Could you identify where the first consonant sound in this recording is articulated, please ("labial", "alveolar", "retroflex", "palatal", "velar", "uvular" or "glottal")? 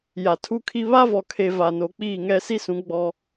palatal